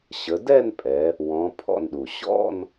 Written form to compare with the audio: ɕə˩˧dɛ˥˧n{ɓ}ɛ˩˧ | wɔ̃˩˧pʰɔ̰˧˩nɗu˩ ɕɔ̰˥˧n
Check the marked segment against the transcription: incorrect: pʼ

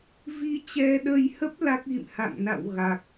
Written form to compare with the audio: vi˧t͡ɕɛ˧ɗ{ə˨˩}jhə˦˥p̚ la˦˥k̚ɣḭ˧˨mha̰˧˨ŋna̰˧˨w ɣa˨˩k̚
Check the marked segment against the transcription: incorrect: ə˧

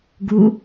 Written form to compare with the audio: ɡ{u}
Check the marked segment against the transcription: correct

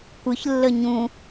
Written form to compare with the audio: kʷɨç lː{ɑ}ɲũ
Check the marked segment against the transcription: incorrect: ə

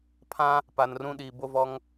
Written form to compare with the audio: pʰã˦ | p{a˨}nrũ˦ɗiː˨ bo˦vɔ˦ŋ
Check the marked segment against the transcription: correct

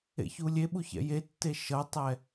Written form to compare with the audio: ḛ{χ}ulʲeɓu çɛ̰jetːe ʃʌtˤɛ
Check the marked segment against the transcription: incorrect: ç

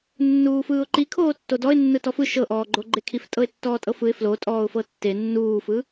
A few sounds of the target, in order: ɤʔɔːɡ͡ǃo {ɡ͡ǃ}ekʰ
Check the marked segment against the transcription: correct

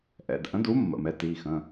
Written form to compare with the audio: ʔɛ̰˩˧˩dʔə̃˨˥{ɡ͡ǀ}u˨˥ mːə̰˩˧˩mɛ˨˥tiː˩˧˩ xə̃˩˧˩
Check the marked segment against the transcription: incorrect: d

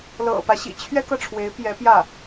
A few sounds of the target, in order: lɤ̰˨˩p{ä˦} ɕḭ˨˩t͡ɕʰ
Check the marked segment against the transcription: correct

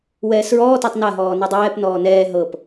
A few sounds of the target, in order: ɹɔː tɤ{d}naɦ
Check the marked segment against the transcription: incorrect: tˤ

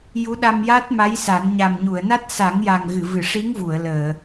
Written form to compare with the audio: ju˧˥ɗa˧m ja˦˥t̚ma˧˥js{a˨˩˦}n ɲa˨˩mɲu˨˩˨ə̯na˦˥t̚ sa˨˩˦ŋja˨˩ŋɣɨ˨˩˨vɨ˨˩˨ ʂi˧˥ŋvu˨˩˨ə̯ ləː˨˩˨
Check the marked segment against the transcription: correct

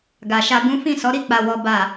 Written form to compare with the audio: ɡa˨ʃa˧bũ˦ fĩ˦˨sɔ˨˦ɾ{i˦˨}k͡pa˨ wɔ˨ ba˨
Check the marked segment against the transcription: correct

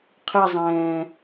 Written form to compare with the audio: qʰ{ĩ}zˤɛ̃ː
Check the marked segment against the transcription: incorrect: i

